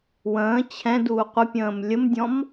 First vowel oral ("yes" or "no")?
no